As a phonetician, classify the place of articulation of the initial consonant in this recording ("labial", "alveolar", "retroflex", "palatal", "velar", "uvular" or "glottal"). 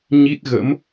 palatal